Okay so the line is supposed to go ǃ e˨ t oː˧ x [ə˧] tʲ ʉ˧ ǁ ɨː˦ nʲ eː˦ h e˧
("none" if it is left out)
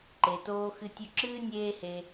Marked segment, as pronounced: ɨ˧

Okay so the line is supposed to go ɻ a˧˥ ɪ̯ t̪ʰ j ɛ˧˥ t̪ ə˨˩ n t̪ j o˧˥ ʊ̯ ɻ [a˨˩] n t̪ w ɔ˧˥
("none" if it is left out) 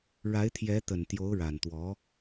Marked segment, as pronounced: a˨˩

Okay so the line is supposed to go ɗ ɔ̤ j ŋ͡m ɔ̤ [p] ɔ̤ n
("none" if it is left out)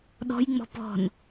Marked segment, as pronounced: p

